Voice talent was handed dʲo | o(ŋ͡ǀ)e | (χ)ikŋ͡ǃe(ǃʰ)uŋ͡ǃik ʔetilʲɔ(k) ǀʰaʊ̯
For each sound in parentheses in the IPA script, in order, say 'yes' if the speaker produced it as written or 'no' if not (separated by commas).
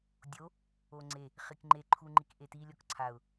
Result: yes, yes, yes, yes